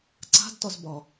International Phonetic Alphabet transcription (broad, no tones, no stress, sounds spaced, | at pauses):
ǀ a̤ d t ɒ z b ɒ